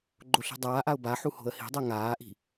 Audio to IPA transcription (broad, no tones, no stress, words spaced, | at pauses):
ɡ͡ǃoɬi̤dˤaːʔaʊ̯ baħu ho̤ə̯hi̤dˤɜ ŋaːʔi̤